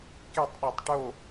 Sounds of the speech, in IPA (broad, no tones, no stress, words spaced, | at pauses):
ketˤ ɗitˤʈo